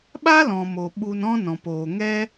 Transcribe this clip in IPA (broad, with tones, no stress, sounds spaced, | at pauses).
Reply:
ɓ a˦ l ɔ̃˨ m o˨ ɓ u˧ n ɔ̃˦ n ɔ̃˨ p oː˨ ŋ ɛ˦